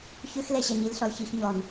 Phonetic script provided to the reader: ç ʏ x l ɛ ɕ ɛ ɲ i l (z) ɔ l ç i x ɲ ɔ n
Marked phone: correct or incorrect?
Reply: incorrect: ɬ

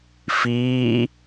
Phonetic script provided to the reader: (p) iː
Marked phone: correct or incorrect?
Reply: incorrect: f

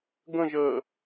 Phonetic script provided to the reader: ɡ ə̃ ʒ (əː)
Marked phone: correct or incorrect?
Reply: correct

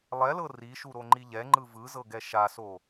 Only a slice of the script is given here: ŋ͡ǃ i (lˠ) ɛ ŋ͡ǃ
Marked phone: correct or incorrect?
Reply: incorrect: ʎ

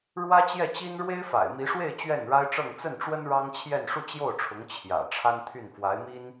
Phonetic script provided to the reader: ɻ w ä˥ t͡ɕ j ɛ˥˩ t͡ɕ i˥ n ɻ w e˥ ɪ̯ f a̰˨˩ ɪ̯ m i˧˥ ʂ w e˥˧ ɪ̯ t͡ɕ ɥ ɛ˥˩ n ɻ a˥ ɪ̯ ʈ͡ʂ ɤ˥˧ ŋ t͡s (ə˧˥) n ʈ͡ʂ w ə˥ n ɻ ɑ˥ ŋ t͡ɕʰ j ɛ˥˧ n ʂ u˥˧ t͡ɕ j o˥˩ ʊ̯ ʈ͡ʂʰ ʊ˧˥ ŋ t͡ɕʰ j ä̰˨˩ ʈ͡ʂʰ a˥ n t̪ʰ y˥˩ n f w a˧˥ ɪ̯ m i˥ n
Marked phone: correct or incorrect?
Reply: incorrect: ə˥˩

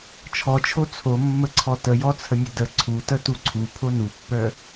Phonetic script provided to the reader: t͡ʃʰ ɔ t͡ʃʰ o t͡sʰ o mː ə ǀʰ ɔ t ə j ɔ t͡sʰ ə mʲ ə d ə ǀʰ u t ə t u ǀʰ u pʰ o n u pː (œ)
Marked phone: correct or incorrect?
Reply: correct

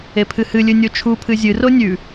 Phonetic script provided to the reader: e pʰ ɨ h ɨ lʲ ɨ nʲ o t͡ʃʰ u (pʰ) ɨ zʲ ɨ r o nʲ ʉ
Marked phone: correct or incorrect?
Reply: correct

